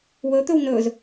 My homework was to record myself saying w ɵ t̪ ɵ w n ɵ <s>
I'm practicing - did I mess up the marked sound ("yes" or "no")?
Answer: yes